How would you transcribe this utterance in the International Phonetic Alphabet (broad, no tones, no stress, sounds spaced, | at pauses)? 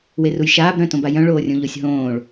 w e r u j ʃ aː b ɾ œ̃ t õ b a j œ̃ ɭ oː rʲ õ ʎ o sʲ ɦ õː ɭ